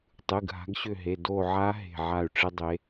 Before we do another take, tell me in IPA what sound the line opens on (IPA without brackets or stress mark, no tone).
tˤ